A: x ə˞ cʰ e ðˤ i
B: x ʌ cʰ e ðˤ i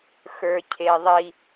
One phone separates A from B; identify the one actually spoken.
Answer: A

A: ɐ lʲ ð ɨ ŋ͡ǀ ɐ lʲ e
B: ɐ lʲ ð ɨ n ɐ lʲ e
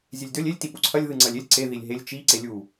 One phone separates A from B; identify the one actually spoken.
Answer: A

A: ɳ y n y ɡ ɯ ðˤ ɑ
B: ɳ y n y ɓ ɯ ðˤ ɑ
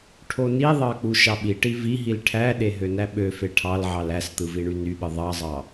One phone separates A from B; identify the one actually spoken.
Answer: B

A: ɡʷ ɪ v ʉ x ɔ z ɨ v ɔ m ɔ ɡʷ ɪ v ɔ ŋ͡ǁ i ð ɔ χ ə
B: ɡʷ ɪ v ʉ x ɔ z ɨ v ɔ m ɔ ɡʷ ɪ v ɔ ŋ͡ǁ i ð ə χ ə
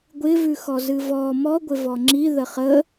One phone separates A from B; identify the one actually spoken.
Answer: B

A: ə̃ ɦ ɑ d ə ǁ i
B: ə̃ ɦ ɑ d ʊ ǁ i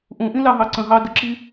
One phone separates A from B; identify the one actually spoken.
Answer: A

